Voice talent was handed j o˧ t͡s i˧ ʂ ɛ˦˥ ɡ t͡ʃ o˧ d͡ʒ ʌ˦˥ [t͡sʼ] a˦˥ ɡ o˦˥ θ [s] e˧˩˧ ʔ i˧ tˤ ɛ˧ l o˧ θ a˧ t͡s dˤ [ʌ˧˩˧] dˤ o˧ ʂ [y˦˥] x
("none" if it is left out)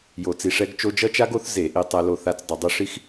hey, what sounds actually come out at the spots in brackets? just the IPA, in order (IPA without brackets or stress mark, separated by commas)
t͡ʃ, z, ʌ˧˩˧, i˦˥